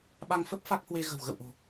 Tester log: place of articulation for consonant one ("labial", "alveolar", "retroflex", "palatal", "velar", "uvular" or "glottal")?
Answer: labial